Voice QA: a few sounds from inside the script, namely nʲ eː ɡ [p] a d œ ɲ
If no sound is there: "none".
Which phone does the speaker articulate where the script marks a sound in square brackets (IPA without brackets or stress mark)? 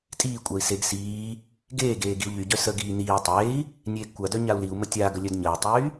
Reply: kʷ